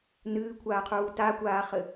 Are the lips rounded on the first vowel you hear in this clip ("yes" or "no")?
no